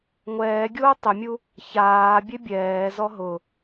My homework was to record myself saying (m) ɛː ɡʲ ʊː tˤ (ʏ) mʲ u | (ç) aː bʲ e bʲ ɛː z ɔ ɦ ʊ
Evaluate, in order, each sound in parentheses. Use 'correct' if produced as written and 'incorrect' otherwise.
incorrect: ŋʷ, correct, correct

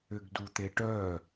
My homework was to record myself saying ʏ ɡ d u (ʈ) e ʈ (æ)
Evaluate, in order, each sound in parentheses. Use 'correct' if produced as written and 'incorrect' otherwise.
incorrect: t̪, incorrect: œ

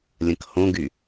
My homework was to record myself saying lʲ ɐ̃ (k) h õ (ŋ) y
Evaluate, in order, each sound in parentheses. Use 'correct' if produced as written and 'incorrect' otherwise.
correct, incorrect: ɡ

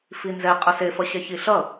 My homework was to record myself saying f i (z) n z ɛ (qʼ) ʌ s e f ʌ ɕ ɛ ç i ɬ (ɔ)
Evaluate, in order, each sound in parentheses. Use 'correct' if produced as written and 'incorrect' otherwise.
incorrect: none, correct, incorrect: ʌ

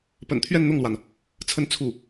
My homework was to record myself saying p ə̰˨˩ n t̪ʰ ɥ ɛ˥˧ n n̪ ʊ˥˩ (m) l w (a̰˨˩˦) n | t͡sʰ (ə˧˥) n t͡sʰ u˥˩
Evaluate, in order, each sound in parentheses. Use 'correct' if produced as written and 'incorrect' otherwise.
incorrect: ŋ, incorrect: a˩, incorrect: ə˥˧

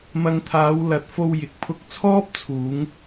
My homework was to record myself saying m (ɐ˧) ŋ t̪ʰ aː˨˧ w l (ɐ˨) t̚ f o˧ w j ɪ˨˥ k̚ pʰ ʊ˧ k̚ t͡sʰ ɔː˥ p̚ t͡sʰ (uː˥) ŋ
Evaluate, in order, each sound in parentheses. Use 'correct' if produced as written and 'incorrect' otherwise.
correct, incorrect: ɐ˨˥, incorrect: uː˨˧

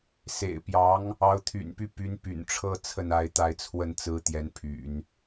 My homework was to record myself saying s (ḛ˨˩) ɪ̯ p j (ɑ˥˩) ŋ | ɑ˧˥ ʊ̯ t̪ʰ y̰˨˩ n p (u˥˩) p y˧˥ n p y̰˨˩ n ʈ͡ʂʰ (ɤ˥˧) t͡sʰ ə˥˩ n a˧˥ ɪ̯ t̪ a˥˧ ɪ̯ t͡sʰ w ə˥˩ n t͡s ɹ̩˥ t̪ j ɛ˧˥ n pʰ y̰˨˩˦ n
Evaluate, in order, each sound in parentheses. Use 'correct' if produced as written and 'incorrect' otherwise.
correct, incorrect: ɑ˧˥, incorrect: y˥˩, correct

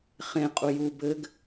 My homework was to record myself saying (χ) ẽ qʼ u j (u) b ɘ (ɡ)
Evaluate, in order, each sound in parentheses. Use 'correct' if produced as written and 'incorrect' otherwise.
correct, correct, correct

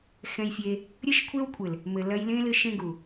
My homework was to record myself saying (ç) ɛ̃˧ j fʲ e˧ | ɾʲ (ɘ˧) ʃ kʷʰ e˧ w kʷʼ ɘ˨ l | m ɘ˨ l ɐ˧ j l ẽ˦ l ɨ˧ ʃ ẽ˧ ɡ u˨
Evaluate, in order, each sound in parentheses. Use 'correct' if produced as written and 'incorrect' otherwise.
incorrect: x, correct

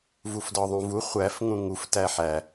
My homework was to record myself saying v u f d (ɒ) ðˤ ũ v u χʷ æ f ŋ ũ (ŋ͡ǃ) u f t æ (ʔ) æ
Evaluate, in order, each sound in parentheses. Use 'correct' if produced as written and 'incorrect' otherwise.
correct, incorrect: ŋ, incorrect: ħ

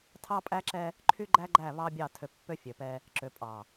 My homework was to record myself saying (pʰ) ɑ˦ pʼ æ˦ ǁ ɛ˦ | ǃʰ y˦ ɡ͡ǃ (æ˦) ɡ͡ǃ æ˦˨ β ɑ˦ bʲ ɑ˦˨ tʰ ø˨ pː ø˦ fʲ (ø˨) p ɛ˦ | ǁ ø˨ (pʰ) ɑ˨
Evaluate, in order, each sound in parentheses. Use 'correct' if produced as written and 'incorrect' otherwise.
incorrect: tʰ, correct, correct, incorrect: pʼ

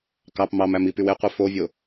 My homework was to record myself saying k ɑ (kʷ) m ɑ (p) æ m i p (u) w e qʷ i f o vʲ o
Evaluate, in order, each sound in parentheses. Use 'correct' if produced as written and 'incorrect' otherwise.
incorrect: p, incorrect: m, incorrect: y

